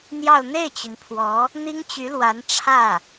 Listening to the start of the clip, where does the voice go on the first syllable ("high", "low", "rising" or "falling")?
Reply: falling